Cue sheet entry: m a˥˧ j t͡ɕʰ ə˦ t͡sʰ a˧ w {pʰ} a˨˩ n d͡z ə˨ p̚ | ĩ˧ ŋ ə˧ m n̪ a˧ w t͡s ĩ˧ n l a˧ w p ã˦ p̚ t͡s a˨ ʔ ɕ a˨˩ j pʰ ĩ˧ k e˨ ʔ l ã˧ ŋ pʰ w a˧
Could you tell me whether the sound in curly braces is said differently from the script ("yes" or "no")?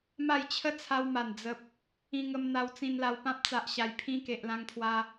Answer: yes